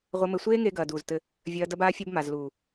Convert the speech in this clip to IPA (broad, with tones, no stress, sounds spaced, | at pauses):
ʁʷ ɘ˧ m ɘ˧ sʷ eː˦ ŋ e˧ ɡ ɐː˨ d uː˨ z t ɘ˧ | vʲ ɐː˧ d ɐ˧ b aː˧ fʲ ɐ˧ b m a˨ z l uː˨